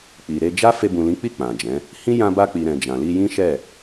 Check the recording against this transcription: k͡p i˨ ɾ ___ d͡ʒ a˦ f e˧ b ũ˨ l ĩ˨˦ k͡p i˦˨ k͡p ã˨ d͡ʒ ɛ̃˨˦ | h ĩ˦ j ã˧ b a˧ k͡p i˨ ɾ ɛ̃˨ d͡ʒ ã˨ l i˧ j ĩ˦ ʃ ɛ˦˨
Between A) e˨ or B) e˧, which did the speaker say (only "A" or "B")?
B